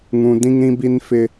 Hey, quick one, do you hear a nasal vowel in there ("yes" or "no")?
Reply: yes